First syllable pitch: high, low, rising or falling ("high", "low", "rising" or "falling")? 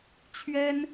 high